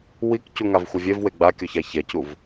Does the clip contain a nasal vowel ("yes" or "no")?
no